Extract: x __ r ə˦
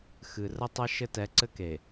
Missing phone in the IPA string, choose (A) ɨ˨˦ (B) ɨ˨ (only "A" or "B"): B